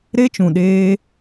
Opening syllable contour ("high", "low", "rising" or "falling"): high